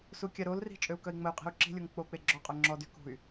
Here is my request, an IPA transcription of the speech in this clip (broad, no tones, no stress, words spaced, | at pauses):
sukʲaɾolri̤ t͡ʃʼøu̯kœi̯ŋ͡məy̯qʼi̤u̯ ǁi̤lʲoŋ k͡pok͡pe ɡ͡ǁɔqʼœ ŋ͡ǁɔdy kṳy̯